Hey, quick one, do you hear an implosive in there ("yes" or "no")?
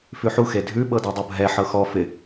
yes